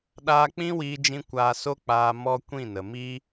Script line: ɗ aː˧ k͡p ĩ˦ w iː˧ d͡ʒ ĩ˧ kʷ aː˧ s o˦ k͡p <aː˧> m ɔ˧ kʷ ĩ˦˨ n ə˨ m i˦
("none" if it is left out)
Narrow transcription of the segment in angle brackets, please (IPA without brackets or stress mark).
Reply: aː˧